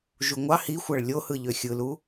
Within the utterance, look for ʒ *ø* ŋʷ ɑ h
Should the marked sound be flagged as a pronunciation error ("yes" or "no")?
yes